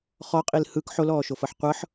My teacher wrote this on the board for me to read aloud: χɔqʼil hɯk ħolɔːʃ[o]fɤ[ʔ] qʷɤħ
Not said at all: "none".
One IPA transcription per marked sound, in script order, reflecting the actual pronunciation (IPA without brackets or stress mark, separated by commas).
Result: o, ħ